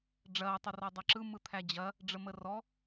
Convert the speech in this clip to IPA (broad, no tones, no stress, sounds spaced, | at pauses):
ɖ͡ʐ ɐː tˤ ə r ɔ dˤ ɐ ǁ ɯ m ɯ t̪ʰ æ d͡ʑ ɐ | ɖ͡ʐ ə m ə r ɔ